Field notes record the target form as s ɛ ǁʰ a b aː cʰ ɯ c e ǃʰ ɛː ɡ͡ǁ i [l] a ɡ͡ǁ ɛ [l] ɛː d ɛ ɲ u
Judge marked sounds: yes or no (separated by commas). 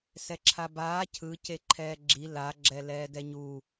yes, yes